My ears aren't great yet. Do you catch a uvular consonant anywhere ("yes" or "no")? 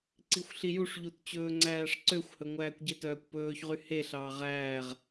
yes